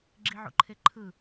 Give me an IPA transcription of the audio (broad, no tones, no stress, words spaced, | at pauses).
ɡ͡ǁiʕṵǃʰeǃʰɯ